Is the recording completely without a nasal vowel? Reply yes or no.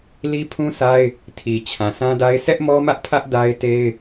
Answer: no